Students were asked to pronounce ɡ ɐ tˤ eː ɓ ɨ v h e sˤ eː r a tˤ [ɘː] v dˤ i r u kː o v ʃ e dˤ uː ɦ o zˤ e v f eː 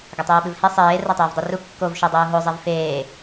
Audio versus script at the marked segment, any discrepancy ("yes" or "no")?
no